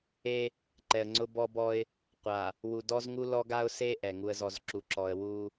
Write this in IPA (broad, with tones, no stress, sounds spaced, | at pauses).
e˦ | ǃ ɛ˨ ə̯ ŋ͡ǀ ʊ˦ b ɔ˦ b ɔ˦ ɪ̯ | qʷ a˨ | w u˨ d ɔ˦ z ŋ u˦ l ɔ˦ ɡ a˦ ʊ̯ s e˦ ʔ ɛ˨ ŋ u˦ ə̯ z ɔ˦ z ǁ u˨ ǁ ɔ˨ ə̯ w u˦